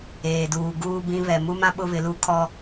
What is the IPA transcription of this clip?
eː˨ d uː˨ ɡ uː˦ b ĩ˦ β ɛ˨ m u˦ m ã˦ ɓ ʊ˦ β ɪ˨˦ l u˦ kʰ ɔ˦

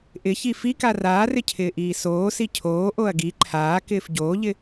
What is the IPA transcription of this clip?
ʔ ɪ ç i f i k a r aː r ɪ cʰ ɪː ʔ iː s oː s i cʰ oː ʔ o ɐ̯ ɡ i ǃʰ aː k ɪː f ɟ oː ʎ ɪ

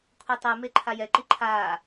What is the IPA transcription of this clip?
kʷʰ e tˤ e m e ǃʰ a j ɛ ǃ i ǃʰ aː

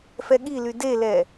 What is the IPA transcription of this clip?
f ɛ ɠ i l y d e l ɛ

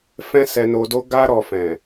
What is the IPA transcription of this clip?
f ɛ̃˦ s ɛ˧ n o˧ d o˦ ɡ a˧ ɾ ɔ˨ f ɛ̃˨

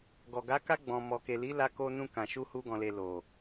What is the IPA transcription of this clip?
ɡ ɔ˨ ɡ a˨˦ k a˧ ɡ͡b ɔ̃˨ m ɔ˨ k e˨ l i˨˦ l a˧ k o˧ n ũ˧ k ã˨ ʃ u˧ h u˦ ɡ ɔ̃˧ l e˧ l o˨

